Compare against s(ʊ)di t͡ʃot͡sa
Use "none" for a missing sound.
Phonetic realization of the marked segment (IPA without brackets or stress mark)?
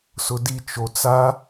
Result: ʊ